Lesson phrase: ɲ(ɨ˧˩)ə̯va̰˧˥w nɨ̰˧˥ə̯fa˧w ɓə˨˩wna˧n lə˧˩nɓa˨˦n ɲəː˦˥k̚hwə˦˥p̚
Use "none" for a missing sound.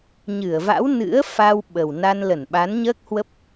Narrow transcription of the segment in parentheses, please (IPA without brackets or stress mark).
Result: ɨ˧˩